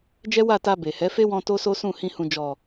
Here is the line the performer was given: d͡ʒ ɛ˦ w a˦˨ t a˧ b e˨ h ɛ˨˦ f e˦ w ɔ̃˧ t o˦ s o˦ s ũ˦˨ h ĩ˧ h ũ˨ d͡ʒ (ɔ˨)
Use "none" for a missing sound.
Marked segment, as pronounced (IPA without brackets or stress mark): ɔ˨